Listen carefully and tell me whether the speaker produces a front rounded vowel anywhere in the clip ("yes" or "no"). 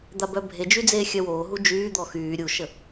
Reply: yes